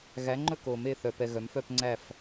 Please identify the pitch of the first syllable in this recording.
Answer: rising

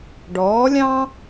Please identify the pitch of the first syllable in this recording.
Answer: rising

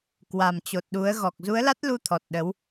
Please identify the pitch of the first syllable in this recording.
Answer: low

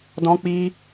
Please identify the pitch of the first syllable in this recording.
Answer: high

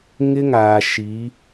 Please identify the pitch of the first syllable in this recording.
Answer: high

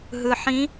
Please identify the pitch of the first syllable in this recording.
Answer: low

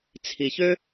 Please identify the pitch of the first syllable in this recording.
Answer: low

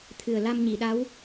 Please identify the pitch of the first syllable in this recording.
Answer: low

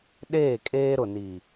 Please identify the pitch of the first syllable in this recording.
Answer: falling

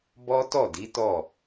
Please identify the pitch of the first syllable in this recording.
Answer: high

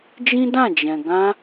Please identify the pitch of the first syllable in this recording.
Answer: high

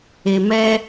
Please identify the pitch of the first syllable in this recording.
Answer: low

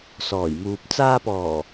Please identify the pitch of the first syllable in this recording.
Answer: low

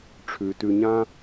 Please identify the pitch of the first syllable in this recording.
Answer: low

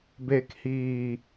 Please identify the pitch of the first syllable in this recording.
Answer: low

